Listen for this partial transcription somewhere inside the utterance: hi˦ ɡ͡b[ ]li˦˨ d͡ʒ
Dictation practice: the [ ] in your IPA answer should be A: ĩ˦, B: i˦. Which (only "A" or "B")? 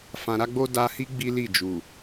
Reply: B